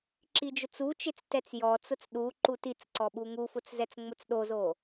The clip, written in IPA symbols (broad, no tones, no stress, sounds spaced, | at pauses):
ǁ i d͡ʒ ʊ t͡s u t͡ʃ e t͡s t ɛ t͡s j ɔ t͡s ʊ t͡s ɗ u ǃ u t i t͡s ǀ ɔ ɓ u ŋ u f ʊ t͡s z ɛ t͡s ŋ͡m ʊ t͡s ɗ o z o